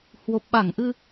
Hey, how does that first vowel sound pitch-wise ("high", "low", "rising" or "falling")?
low